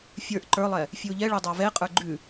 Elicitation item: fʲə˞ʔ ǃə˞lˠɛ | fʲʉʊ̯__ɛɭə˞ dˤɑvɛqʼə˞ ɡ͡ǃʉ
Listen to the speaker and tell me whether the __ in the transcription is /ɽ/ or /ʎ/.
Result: ʎ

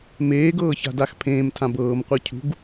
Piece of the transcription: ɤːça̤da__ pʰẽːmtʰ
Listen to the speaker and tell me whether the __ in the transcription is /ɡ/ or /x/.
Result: x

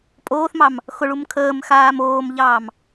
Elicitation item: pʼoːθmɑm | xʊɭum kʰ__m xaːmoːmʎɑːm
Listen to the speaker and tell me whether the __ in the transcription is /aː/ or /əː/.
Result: əː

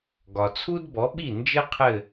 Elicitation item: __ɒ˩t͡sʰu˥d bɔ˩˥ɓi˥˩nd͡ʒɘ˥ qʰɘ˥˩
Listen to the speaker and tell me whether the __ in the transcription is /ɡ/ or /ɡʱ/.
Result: ɡ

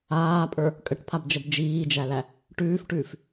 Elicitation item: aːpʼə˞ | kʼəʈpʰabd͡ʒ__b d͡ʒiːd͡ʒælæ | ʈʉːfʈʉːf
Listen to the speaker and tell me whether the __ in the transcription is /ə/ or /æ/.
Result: ə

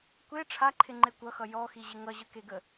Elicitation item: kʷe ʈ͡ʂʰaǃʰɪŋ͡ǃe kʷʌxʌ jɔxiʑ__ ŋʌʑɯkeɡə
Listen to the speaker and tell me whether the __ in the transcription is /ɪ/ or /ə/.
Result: ɪ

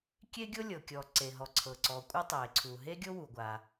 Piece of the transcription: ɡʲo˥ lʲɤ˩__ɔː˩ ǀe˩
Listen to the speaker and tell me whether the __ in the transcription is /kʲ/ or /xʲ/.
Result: kʲ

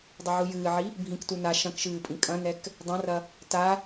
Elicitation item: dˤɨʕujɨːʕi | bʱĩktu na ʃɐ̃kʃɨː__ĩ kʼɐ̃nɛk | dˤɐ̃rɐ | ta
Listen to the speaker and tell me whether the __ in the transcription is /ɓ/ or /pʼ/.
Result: pʼ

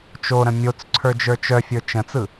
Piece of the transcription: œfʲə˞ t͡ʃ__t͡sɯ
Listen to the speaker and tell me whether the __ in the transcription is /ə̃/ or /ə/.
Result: ə̃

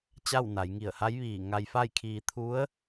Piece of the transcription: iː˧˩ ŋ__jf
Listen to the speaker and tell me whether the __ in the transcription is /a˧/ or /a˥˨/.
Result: a˧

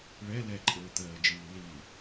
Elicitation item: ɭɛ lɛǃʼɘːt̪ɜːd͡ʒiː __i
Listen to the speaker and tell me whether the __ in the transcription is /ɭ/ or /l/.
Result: l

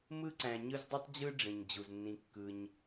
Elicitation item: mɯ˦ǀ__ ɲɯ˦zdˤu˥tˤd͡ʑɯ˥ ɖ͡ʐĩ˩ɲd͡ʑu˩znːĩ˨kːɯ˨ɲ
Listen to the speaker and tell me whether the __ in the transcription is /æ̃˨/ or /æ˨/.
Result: æ̃˨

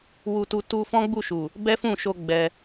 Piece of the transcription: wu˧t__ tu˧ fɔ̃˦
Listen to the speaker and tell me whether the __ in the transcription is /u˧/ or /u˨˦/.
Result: u˧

